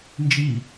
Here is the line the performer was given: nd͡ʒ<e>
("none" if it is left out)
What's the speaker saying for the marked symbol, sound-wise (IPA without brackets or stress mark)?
i